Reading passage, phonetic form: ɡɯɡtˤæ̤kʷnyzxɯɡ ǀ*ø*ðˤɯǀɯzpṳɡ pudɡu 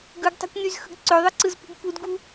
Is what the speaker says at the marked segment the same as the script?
yes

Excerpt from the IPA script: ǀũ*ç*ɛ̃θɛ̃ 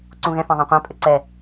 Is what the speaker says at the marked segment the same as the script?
no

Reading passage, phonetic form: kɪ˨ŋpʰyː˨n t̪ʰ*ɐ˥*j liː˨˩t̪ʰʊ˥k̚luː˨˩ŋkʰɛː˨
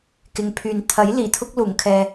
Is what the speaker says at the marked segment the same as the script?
no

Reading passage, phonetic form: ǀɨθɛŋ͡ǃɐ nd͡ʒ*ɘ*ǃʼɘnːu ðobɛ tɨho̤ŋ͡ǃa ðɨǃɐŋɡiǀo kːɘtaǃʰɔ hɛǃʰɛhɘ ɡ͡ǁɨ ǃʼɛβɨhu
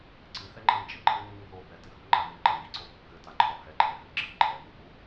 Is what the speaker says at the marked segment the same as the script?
yes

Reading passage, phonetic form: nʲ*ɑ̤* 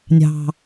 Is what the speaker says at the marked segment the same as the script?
yes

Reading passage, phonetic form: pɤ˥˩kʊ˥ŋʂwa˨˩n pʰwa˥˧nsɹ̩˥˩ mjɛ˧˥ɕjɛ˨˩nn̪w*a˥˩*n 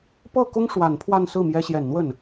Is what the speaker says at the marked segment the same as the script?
no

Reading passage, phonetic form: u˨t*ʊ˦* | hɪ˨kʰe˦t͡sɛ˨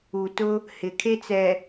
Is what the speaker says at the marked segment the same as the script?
yes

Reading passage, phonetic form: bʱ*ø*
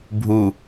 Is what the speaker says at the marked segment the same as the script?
no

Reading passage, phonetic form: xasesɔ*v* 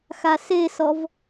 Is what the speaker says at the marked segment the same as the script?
yes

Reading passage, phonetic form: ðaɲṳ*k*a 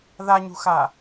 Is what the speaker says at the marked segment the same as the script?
no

